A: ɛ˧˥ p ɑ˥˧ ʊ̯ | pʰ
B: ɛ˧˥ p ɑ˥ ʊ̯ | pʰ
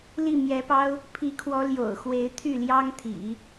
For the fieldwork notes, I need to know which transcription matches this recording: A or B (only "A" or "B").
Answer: B